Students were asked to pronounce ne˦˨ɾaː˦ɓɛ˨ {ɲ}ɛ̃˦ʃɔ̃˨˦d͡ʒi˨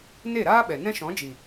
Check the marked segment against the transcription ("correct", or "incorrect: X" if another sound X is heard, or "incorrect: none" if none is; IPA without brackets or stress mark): incorrect: n